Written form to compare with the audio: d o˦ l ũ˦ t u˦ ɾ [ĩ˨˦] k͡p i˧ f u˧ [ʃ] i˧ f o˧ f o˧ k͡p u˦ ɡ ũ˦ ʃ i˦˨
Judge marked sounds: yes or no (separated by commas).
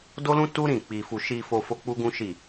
no, yes